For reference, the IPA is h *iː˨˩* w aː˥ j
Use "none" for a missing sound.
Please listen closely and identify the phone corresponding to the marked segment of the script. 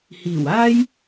iː˨˩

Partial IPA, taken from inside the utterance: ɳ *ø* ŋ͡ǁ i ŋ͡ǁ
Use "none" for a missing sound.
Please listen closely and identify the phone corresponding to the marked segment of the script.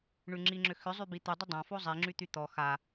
y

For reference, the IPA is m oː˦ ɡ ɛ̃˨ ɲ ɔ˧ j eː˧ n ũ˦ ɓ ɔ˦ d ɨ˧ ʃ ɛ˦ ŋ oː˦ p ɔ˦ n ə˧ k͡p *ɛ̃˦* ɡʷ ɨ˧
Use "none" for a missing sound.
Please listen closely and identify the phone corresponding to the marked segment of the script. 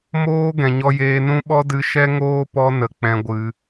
ɛ̃˧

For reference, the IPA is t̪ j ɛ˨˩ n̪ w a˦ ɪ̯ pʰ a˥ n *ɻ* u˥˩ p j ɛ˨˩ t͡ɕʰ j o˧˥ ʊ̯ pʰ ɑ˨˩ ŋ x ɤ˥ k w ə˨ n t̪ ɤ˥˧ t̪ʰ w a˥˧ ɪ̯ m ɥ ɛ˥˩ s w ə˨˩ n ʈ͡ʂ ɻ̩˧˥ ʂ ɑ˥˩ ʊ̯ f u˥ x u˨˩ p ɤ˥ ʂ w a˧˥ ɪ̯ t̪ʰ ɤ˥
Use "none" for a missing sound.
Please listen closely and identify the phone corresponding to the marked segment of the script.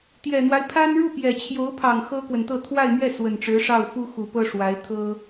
ɻ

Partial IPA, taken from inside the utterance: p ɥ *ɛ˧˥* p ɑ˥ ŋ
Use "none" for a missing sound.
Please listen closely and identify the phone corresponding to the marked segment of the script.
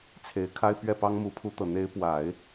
ɛ˥˩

